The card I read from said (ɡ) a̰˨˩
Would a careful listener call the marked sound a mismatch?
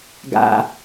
no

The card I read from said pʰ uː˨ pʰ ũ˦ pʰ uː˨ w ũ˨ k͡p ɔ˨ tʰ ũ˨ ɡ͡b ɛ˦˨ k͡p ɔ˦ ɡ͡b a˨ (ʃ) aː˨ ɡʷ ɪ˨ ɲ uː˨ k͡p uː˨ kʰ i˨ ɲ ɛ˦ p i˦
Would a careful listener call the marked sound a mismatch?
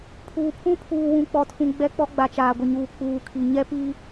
yes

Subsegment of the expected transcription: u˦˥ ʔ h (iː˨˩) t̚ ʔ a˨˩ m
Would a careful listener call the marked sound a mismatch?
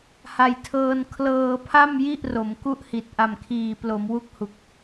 yes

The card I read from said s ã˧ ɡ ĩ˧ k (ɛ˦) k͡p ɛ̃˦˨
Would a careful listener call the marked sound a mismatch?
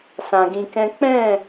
yes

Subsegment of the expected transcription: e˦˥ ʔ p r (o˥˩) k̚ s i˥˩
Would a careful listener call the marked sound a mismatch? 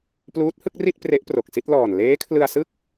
yes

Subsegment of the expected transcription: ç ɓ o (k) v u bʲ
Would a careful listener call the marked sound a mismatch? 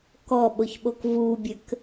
no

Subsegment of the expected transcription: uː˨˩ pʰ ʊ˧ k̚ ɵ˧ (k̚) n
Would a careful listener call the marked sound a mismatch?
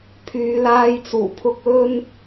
yes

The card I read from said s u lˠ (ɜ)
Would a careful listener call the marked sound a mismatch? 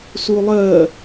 no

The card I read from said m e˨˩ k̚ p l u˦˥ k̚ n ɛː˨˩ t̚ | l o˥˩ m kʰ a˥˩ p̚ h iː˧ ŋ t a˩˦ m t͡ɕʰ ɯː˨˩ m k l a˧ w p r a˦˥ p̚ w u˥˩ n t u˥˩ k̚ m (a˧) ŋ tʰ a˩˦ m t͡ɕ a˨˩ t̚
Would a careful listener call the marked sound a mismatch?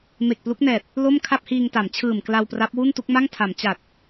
yes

